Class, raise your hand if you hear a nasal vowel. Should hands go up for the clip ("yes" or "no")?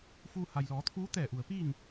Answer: no